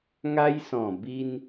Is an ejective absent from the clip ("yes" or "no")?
yes